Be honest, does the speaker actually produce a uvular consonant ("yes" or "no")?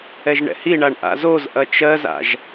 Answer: no